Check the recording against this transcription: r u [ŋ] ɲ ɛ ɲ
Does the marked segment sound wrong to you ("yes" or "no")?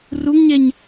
no